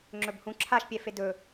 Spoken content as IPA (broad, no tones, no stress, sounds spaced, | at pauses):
ŋ͡ǁ ɵ b h ũ ǁʰ a ʃ pʲ ɛ f e d ɵ